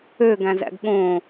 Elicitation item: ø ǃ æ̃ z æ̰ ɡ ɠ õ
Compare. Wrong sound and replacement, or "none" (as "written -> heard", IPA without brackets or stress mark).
ǃ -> ɡ